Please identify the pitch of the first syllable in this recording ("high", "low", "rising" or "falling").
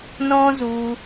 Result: high